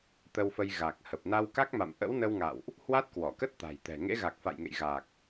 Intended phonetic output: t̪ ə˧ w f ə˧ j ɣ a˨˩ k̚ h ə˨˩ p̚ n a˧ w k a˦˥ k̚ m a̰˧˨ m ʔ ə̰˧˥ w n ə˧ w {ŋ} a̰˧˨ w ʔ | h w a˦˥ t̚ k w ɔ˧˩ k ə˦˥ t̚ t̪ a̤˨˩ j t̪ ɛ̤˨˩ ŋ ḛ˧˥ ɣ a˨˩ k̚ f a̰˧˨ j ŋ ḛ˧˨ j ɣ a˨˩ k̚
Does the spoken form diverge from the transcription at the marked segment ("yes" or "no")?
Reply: no